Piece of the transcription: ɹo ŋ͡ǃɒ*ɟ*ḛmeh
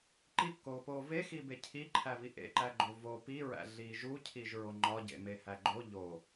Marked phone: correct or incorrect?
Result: correct